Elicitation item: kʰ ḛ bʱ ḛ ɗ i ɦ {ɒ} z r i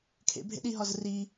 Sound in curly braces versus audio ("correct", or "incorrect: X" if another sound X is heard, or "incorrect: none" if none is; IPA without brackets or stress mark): correct